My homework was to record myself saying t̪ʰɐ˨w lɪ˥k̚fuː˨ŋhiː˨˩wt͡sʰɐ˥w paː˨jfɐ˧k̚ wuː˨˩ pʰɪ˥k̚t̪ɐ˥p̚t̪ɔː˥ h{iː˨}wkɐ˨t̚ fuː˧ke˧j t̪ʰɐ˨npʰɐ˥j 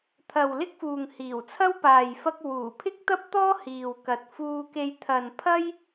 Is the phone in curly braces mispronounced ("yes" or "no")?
no